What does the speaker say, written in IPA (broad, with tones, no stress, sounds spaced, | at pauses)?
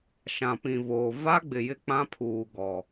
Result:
ʃ ã˨ p ĩ˨ v oː˨ v a˦ ɡ͡b ɪ˨ j ɪ˦ k͡p ã˦ pʰ uː˨ ɡ ɔ˨